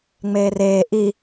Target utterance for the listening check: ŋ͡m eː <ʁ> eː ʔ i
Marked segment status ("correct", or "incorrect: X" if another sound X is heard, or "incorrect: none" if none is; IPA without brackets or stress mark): incorrect: r